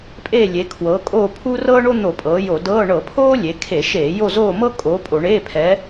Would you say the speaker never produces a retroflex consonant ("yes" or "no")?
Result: no